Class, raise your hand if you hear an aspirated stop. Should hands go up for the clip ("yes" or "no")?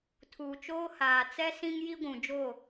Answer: yes